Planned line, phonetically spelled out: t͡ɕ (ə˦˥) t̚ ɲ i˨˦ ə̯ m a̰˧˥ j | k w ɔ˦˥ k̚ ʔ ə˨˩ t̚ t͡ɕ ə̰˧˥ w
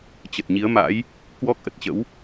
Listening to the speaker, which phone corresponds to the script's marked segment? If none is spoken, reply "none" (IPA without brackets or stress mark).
ə˨˩